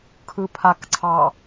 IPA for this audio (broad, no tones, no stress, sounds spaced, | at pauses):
kʰ ɯ pʰ a k ǀʰ ɑ